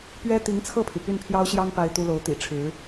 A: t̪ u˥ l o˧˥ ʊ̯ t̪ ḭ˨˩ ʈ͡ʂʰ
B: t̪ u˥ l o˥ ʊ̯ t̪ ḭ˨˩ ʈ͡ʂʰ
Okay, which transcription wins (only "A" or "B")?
A